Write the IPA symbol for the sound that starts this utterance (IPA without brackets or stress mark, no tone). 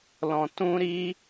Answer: l